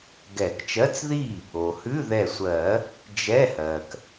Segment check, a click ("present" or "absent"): absent